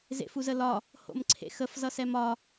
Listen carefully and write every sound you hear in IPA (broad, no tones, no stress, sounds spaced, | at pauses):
z ḛ f u z ə l ɒ | h o̰ m ǀʰ ḛ x ə f z ʌ s ɛ m ɒ